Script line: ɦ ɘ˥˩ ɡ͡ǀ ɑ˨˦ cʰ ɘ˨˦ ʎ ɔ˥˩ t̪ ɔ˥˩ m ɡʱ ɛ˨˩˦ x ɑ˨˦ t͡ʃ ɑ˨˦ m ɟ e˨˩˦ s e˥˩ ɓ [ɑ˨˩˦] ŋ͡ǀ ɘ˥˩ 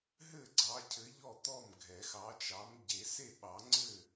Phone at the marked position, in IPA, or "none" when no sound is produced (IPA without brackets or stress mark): ɑ˨˩˦